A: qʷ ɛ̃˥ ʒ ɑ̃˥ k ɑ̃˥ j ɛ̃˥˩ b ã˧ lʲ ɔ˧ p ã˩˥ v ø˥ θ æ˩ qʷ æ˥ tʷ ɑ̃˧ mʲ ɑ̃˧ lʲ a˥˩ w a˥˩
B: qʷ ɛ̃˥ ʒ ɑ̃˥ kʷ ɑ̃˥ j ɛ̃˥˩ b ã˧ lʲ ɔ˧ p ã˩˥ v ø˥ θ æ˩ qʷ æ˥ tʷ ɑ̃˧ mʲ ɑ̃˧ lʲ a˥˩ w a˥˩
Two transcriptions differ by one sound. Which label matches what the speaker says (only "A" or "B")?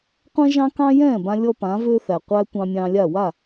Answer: A